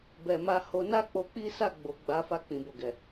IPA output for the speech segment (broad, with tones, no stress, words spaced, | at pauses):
bɛ˨ma˧ho˧ na˦k͡po˧k͡pi˦ sa˦˨ ɡ͡bo˨ ɡ͡ba˨˦fa˦˨k͡pĩ˨bo˨ ɡɛ˨